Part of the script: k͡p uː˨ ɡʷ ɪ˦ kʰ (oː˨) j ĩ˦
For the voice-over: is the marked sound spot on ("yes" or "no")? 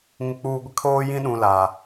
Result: no